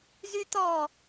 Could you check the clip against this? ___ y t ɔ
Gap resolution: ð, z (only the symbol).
z